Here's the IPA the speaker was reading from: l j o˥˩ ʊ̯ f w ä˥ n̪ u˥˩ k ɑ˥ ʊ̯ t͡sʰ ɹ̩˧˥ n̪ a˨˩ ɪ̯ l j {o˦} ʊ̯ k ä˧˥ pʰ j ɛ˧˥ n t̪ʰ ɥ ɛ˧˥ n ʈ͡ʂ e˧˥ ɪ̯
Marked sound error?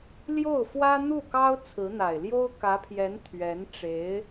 yes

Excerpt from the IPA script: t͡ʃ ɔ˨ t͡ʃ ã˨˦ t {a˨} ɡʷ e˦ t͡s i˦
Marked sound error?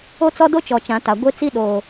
no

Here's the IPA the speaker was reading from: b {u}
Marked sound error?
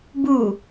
no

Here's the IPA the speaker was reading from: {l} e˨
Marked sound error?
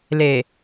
no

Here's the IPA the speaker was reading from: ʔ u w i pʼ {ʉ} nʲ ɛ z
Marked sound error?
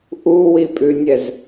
no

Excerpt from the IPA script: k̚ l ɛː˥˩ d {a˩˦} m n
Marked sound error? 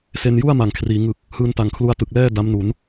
yes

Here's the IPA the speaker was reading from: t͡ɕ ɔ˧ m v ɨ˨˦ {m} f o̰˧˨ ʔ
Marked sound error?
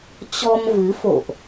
yes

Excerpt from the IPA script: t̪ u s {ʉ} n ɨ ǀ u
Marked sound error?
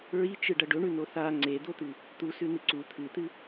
no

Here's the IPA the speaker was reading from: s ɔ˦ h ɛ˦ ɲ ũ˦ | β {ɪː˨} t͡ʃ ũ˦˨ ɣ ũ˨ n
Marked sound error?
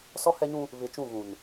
yes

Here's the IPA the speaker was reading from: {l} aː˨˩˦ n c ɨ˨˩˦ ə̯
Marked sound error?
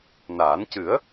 yes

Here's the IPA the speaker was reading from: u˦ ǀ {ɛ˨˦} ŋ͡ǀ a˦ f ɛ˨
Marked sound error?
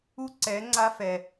no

